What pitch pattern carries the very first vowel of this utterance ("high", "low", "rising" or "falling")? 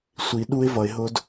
low